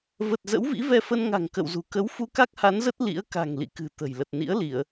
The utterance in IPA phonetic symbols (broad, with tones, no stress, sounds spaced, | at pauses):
v ə˨˩ t̚ z ə̰˧˥ w v ḭ˧˥ v ɛ˧ f ə˧ n ŋ a̤˨˩ ŋ k ə̰˧˨ w z ṳ˨˩ k ə˨˦ w f u˧ k a˦˥ k̚ h a˨˦ n z ə˦˥ t̚ l ḭ˧˥ ə̯ k a̤˨˩ ŋ l ḭ˧˨ k ɨ̤˨˩ t̪ ə̤˨˩ j l ə˨˩ t̚ n ḭ˧˥ ə̯ l i˧˩˨ ə̯